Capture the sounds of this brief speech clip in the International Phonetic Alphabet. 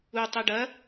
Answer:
u tˤ i ɖ ɐ

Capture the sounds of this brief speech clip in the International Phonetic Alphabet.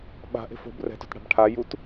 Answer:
ɓ a̤ ʔ e̤ f o̤ b r ɛ̤ t o̤ t ɽ a̤ b ʈʰ a j u t

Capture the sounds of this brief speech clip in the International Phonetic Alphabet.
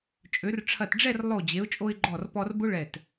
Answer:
t͡ʃʼ ø˩˧ r ʈ͡ʂʰ ɐ˧˩ t ɖ͡ʐ ɛ˥˧ r lˠ o˧˩ d͡ʑ e˩˧ ʊ̯ t͡ʃʼ o˧ ɪ̯ ɡ͡ǃ ɔ˧˩ r p ɔ˧ r b ʊ˥ ɭ ɛ˧˩ t

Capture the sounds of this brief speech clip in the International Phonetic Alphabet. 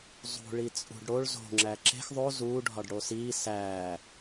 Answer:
zˤ ṳ ɭ i t͡sʼ ṳ ɖ ɽ o ɭ z o̤ ŋ͡ǁ æ ǁ e̤ x ðˤ o z uː ɖʱ ɒ ɖ ɽ o s iː s æː

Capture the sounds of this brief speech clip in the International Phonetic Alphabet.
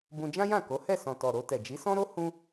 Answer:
b ũ˧ d͡ʒ ã˦ j ã˦˨ k o˨˦ h ɛ˦˨ s ɔ̃˨ t ɔ˨ ɾ o˧ t ɛ˨ d͡ʒ i˨˦ s ɔ̃˦ ɾ o˦ h ũ˦

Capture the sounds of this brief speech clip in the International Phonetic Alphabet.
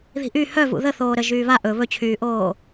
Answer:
ð i̤ ʔ y h œ v ṵ ð ə θ oː ɾ ə ʒ yː β a ʔ ɵ β ɵ t͡ɕʰ yː ʔ oː

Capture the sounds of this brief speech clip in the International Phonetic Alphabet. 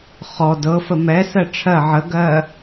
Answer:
χ ɔ d ɤ f ə m ɛ s ɜ ʈ͡ʂʰ ɜ ʕ ə ɡ ɜ

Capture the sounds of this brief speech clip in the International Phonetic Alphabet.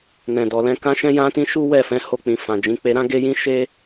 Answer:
n ɛ̃˨ d ɔ˨ l ɛ̃˧ k ã˧ ʃ ɛ̃˧ j ã˧ t ĩ˧ ʃ u˦ w ɛ˦˨ f ɛ̃˨˦ h o˧ k͡p ĩ˨ f ã˨ d͡ʒ ĩ˨˦ k͡p e˧ ɾ ã˦ ɡ e˦ j ĩ˦ ʃ e˦

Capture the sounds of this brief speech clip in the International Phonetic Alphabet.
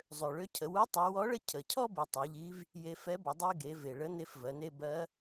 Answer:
zˤ ø˩ ɭ ø˧˥ cʰ ə˩˧ w u˧˥ tˤ u˩˧ w ɔ˧˥ ɭ ə˥ cʰ ə˩ cʰ ɔ˥ b i˩˧ tˤ ɛ˩˧ ʎ i˧˥ v | j e˧ f ɛ˧˥ b ə˩˧ dˤ i˥ ɡ e˩˧ v e˩ ɭ ə˧˥ n e˧˥ f v ɜ˩˧ n e˥ b ɜ˧˥

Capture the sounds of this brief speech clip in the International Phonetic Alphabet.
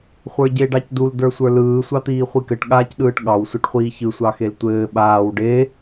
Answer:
χʷ ə˞ ɟ e ɖ ɑ c d u l d ə˞ sʷ ə˞ l ɯː sʷ ɑ t̪ iː χʷ i k ɘ ʈ ɠ aː c ɗ ɯː ʈ ɠ ɑ w sʷ a ʈ χʷ iː ç ɯ sʷ ɑ x e l tʷ ɘː ɓ aː w ɖ e

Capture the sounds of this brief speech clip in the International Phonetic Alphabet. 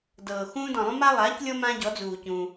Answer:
d ɤː˩ x ũː˦ d ɔ̃˩ lˠ ũ˦ m a˦ lˠ aː˩˥ c lʲ ɤ˦ m ã˦ ɟ ɔ˩˥ d͡z uː˩ c ũ˩

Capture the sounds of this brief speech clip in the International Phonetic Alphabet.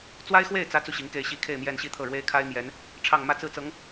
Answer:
t͡s w a˥ ɪ̯ x w e˥˩ ɪ̯ t͡s ä˧˥ t͡s u˥˩ ɕ i˧˥ ŋ k e˥˩ ɪ̯ ɕ i˥ kʰ e˥˧ ɪ̯ m j ɛ˥˧ n ɕ i˥˧ t̪ʰ ɤ˥˩ ɻ w e˥ ɪ̯ kʰ a˥ ɪ̯ m j ɛ˧˥ n | ʈ͡ʂʰ ɑ˥˧ ŋ m ä˥˧ t͡s ɹ̩˥˩ t͡s ɤ˧˥ ŋ

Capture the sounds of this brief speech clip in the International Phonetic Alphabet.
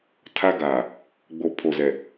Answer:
tʰ a˦ ɡ aː˨ | ɡ͡b o˨ pʰ o˨ z ɛ˨

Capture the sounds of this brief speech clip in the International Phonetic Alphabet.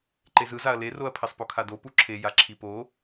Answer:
ǃ e z ɯ z a ɐ̯ l e r o ɐ̯ pʰ e sˤ p o kʰ a d o p u ǁʰ e j a ǁʰ i p o

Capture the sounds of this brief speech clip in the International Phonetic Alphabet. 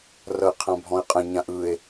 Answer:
r ʌ e̯ qʰ ã bʱ ɔ̃ e̯ qʼ ə̃ ɲ ã ʔ ɯ e̯

